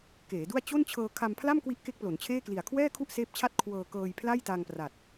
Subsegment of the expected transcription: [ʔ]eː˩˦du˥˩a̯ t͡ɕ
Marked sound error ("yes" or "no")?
yes